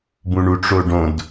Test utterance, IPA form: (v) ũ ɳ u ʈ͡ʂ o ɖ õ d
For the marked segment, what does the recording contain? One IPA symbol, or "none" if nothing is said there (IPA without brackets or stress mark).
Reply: b